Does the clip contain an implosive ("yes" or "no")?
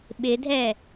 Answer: yes